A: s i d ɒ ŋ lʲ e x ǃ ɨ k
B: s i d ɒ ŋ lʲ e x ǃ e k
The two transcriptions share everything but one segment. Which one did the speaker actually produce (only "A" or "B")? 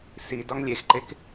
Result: B